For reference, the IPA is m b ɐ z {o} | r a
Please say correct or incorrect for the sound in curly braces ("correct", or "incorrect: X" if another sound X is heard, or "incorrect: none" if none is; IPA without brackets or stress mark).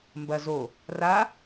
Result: correct